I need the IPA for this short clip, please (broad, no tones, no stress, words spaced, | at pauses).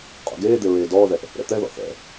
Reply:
qʼo̰ɡeːd̪e ɹeːdɔːðɛʔ | ɾɛ̰t̪ɛðɔ̰ θɛ̰